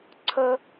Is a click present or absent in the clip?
present